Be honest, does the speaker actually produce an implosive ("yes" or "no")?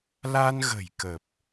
no